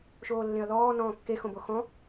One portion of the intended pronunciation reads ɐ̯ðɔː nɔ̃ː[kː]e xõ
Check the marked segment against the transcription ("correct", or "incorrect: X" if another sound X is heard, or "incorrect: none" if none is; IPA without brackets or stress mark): correct